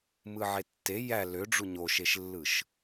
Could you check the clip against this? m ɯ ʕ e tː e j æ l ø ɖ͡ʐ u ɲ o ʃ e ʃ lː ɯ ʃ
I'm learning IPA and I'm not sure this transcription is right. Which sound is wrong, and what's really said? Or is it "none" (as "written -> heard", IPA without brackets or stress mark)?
none